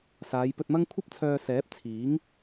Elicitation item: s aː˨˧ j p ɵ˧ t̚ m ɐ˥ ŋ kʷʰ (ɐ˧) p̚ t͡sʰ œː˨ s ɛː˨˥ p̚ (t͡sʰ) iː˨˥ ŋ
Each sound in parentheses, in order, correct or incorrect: correct, correct

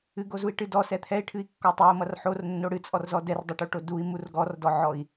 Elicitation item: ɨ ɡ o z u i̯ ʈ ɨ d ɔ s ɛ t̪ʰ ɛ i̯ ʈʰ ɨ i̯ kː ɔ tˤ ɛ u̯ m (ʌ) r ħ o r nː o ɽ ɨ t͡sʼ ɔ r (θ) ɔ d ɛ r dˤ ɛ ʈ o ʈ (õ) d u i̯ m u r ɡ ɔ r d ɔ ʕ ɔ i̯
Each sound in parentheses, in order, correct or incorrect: correct, incorrect, incorrect

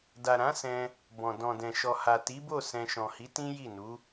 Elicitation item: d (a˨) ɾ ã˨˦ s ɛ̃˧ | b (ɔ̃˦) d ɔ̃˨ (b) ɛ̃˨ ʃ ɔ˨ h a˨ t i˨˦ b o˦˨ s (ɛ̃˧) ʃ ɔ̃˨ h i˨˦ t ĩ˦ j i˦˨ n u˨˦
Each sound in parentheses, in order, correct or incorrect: correct, incorrect, incorrect, correct

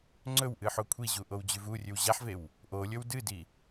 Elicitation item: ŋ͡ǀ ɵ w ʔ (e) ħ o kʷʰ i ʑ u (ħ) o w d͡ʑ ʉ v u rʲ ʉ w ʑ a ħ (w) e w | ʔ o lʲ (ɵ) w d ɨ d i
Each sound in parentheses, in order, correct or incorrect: incorrect, incorrect, incorrect, correct

